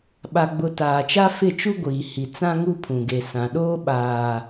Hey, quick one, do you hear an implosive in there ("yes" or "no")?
yes